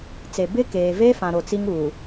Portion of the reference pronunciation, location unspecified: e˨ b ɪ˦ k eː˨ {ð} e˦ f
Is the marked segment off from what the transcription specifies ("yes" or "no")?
yes